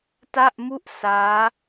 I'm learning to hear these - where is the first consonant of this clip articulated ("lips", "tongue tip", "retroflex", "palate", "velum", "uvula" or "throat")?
tongue tip